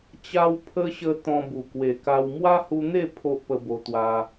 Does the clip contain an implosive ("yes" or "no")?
no